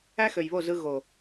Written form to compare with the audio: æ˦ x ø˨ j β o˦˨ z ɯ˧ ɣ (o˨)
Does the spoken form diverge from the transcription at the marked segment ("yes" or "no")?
no